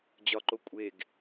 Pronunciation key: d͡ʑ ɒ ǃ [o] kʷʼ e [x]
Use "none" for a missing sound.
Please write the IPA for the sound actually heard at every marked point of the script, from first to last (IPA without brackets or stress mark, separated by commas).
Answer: o, ɡ